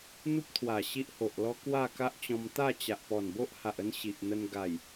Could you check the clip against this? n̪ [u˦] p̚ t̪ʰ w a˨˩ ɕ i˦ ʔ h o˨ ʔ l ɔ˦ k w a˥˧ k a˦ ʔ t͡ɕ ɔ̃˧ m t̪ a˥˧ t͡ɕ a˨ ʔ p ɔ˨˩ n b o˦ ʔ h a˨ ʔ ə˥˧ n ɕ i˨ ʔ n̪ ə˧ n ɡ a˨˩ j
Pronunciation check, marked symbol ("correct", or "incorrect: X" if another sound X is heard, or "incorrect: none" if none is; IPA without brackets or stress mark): correct